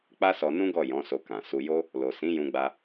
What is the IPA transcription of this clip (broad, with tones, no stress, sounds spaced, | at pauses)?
k͡p a˦ s ɔ˧ n ũ˦ ɡ ɔ˦˨ j ɔ̃˨˦ s o˧ k ã˨ s u˧ j o˦ | l o˨ s ĩ˨˦ j ũ˧ ɡ͡b a˧